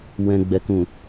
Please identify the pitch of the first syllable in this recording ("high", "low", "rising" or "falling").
low